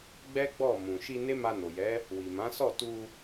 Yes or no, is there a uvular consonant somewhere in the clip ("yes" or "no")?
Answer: no